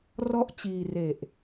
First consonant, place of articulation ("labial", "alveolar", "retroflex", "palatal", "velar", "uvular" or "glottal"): alveolar